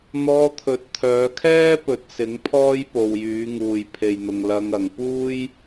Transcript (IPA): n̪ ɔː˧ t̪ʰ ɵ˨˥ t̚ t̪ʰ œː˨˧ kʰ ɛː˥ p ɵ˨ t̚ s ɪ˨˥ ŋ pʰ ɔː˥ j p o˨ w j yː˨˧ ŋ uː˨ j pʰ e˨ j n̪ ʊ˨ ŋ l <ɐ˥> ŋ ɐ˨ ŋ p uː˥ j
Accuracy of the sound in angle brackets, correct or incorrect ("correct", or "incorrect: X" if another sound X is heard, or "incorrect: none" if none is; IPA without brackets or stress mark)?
incorrect: ɐ˧